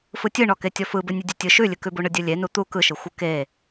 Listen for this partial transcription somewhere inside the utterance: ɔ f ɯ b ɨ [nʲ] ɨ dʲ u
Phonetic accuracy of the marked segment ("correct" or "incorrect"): correct